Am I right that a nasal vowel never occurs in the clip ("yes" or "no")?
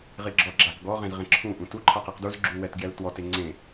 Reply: no